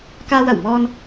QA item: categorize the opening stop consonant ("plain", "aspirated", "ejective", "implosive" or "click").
plain